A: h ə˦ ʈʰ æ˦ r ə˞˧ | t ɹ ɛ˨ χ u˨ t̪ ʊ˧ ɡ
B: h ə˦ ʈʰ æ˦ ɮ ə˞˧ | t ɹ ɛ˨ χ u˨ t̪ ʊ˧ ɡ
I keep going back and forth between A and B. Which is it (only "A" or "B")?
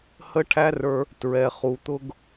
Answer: A